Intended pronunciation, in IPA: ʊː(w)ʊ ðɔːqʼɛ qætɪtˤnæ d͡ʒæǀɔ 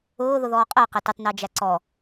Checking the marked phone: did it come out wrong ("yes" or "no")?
yes